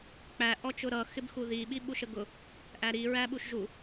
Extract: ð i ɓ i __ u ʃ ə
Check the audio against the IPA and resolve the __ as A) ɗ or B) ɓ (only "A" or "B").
B